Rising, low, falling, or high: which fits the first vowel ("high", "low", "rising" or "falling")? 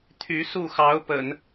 rising